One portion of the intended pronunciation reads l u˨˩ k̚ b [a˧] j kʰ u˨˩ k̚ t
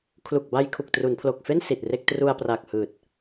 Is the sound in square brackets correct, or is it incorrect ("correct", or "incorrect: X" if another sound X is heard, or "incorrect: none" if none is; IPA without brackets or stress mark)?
correct